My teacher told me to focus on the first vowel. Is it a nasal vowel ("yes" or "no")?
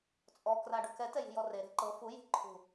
no